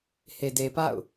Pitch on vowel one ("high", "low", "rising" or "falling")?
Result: low